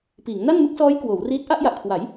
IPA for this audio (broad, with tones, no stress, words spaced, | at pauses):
piː˩˦ŋna˥˩nmɯ˦˥k̚sɔː˦˥j kwoː˩˦wriː˦˥t̚ ʔa˥˩ʔja˨˩ʔkʰwa˩˦j